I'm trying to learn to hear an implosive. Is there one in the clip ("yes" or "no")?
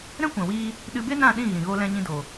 yes